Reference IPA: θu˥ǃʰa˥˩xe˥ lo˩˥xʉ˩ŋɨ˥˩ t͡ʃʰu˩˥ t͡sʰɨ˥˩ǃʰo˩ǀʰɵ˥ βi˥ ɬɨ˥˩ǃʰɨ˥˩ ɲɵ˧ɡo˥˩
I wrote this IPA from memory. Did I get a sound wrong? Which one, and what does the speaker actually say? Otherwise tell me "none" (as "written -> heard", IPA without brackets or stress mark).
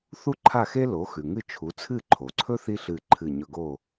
β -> θ